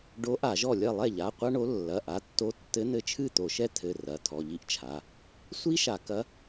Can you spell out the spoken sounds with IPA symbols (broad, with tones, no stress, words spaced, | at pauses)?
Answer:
ɖo˧˥ʔa˧˩˧ʒɔ˥˩lʲɐ˥˩ lˠɛ˥˩ʎa˩˧˩ qʷa˥ɳo˧˥ lːɐ˩˧˩ʔa˩˧˩tːo˧˥ tːɘ˧˥n̪ɘ˧˥t͡ʃʰɨ˥˩ t̪o˧˩˧ʃɛ˥ tʰɘ˩˧˩ rɐ˩˧˩tʰɔ˩˧˩ʎi˥ʔt͡ʃʰa˩˧˩ | sʷi˥ʃa˧˩˧ kɐ˧˥